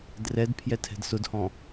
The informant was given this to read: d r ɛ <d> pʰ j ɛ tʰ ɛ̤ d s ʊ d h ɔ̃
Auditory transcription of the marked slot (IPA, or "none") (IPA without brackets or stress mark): d